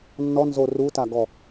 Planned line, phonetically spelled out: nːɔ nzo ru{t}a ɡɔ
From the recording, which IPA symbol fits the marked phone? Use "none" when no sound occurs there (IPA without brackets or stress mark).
t